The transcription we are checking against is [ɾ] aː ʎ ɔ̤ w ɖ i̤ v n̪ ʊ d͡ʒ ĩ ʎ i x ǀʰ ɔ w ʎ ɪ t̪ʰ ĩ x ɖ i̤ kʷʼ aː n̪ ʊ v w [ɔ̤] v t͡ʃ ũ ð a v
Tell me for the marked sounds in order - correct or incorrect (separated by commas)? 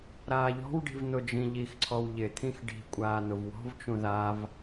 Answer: correct, correct